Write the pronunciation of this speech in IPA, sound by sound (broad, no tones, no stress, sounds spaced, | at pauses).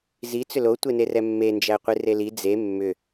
z i t͡s ʏ l o tʷ e n e r ɛ mː e n d͡ʒ æ qʷ i r e l i d͡z e mː ʏ